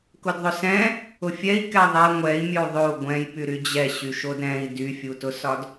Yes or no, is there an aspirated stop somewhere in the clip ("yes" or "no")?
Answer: no